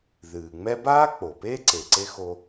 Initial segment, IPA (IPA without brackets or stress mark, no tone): ð